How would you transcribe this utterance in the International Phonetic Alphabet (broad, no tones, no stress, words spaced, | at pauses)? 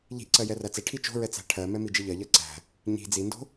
ʎi̤ʔǀɜ jɛræt͡sɛʈʰi t͡ʃo̤ɹɛ t͡sæ̤ʈʰɜmɛ mid͡ʒiʎɜʎɜ ǀæ̤ | ɲi̤ d͡zindo̤